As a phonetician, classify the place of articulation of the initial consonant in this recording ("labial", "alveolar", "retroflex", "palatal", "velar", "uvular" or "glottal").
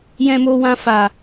palatal